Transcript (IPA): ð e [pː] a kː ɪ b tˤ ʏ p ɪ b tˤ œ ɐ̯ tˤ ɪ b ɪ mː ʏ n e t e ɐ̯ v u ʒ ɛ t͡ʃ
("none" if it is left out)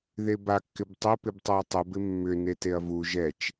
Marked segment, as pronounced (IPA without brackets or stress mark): b